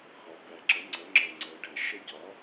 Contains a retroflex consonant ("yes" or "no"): yes